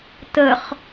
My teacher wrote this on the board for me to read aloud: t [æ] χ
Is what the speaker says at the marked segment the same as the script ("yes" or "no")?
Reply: no